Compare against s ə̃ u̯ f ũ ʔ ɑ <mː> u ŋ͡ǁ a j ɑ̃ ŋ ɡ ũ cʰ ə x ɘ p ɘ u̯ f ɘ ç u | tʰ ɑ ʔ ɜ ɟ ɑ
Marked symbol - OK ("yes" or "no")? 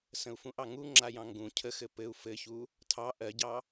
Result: no